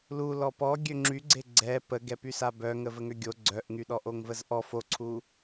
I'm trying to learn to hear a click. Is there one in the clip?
yes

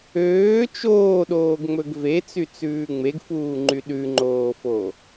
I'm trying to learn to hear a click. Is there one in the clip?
yes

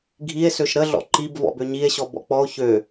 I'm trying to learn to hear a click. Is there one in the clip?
yes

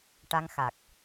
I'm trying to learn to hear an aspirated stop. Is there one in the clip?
no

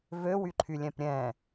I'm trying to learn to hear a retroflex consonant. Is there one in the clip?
no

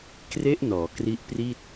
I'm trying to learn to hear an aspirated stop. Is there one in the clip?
no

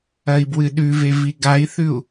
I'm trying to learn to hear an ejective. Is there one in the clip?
no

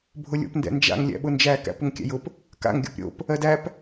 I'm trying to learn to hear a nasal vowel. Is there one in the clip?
no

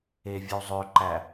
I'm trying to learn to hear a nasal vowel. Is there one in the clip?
no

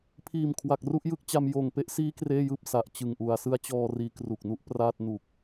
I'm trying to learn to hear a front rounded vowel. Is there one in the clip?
no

